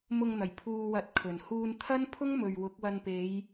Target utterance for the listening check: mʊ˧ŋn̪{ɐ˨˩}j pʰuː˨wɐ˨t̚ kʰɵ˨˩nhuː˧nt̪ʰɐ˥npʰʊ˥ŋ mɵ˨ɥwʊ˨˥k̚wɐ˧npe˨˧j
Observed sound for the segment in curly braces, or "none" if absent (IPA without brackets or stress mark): ɐ˨˩